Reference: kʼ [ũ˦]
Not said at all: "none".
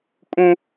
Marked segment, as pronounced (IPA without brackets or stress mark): ũ˦